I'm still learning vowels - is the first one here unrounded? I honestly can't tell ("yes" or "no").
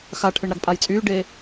yes